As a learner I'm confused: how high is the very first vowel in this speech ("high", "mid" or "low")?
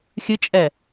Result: high